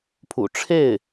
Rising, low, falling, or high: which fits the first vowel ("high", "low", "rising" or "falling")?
low